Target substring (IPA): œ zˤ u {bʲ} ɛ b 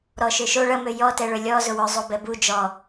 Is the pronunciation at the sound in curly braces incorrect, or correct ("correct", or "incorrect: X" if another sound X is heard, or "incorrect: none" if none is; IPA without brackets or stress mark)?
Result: incorrect: b